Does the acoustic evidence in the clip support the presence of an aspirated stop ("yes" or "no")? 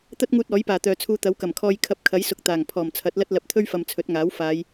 yes